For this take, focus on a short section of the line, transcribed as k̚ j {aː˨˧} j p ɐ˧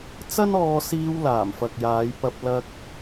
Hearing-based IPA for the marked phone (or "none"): aː˨˧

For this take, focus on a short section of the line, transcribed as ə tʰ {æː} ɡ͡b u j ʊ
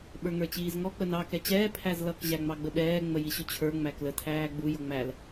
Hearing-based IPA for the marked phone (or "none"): æː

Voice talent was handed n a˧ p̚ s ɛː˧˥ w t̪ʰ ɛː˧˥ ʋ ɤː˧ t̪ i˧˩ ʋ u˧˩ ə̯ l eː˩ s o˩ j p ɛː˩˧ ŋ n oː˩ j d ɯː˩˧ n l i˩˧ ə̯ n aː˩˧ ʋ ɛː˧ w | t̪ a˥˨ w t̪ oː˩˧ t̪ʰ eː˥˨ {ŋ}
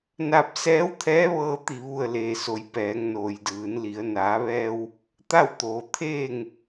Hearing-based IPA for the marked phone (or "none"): ŋ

